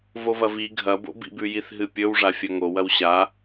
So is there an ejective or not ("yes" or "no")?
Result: no